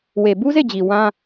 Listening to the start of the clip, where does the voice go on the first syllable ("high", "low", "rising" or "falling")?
low